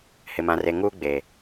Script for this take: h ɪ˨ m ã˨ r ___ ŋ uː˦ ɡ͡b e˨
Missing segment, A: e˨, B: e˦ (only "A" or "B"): A